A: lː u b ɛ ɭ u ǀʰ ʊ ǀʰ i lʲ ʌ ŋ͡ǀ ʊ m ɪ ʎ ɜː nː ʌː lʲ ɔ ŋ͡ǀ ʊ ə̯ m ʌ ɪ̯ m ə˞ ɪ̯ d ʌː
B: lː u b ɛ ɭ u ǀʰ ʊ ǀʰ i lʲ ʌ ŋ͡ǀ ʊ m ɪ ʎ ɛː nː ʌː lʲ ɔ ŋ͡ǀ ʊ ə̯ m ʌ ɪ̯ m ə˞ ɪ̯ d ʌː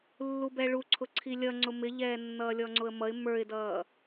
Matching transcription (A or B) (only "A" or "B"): B